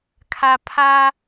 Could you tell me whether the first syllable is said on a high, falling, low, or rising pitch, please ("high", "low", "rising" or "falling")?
low